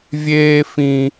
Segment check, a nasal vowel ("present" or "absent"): present